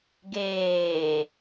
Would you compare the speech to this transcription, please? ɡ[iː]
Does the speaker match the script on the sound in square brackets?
no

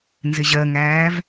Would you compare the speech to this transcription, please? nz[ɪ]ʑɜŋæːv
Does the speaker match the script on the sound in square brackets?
yes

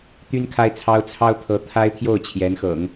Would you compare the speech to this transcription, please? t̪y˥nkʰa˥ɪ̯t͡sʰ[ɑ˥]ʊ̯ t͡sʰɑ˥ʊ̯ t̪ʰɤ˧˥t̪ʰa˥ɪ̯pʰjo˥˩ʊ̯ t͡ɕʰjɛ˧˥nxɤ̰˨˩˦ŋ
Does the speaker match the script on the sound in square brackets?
yes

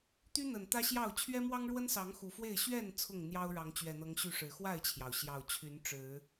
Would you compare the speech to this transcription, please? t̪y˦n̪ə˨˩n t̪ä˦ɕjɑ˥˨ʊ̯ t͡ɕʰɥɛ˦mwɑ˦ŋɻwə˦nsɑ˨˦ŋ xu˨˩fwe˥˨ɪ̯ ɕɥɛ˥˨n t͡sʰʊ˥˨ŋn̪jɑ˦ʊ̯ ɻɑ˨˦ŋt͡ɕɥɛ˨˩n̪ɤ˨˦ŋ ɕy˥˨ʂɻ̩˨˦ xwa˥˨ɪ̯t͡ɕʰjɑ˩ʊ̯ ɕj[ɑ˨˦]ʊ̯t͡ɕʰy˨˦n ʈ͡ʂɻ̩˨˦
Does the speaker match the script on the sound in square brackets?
no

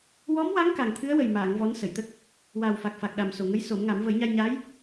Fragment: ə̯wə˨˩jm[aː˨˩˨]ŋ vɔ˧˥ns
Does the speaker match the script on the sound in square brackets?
yes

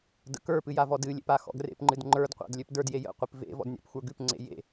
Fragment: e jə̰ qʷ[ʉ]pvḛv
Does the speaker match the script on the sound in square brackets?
no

